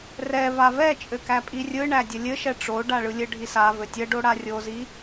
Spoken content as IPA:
rɛ vavɛt͡ʃʼɘ kæpʼirʲɯɳæ dʲəlʲɘʃɛ ʈ͡ʂo ɖaɭɯlʲɘɖʱi sa vɘtʲəɖo ɽarʲozi

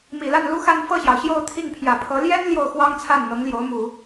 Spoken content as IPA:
mi˨˩la˥˩nlu˥xa˥˧n fɤ˥˩ɕjɑ˩ʊ̯ ɕjo˥˧ʊ̯t̪ʰi˥˩ŋpʰjä˨˩pʰɤ˧˥ ljɛ˥n ljo˥˩ʊ̯xwɑ˥ŋt͡sʰa˥˩n n̪ɤ˧˥ŋljo˧˥ʊ̯mu˨˩˦

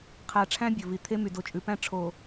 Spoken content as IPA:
qʰæ˨ʈ͡ʂʰæ̃˦ bʲɵ˨vi˨ t̪ʰe˦ my˨ do˨t͡ʃʼʉ˨pæ̃˦ ʈ͡ʂʰo˨

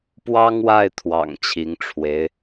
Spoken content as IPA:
pwɑ˥ŋwa˥˩ɪ̯t̪ʰwɑ̰˨˩ŋ t͡ɕʰi˧˥ŋʈ͡ʂʰwe˧˥ɪ̯

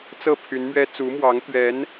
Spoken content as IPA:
t͡sɤ˥˩ pʰy˧˥nmɥɛ˥ t͡su˧˥mwɑ˧˥ŋt̪ɥɛ˧˥n

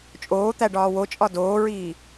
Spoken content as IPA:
t͡ʃʼoːt̪æ ɖɒːwot͡ʃʼɒ doːɹiː

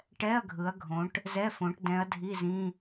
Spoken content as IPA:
ʈɛ˧˥˧ɐ̯ɡʱɯ˩˧ɐ̯ɡʱõ˩˧ʈ | zɛ˧˥˧fõ˩˧ʈ dɛ̃˩˧ɐ̯ dʱi˧˥˧zĩ˧˥˧

